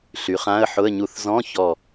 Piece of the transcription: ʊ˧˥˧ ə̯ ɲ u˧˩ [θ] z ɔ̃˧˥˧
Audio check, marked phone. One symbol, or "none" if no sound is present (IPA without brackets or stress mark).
θ